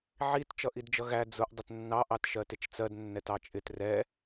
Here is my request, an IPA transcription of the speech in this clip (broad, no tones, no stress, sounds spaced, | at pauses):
ʕ i t t͡ʃ ʌ ʔ i d d͡ʒ ʌ ɣ æ d͡z ʊ ʔ dˤ ə t nː ɑ ʔ ɑ t ʃ ɜ t ɪ t͡ʃ t͡s ɜ d nː ɛ t ɑ t͡ʃʼ ɪ t r ɛ